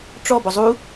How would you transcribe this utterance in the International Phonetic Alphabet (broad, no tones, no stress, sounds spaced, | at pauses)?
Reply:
ʈ͡ʂ ɔ b ɔ zˤ u